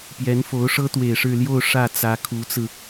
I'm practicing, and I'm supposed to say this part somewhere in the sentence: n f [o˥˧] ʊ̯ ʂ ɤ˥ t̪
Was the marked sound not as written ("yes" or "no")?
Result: yes